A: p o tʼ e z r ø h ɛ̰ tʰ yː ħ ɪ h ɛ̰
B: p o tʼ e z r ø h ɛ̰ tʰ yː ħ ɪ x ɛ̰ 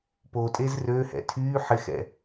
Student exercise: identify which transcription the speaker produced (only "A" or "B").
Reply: B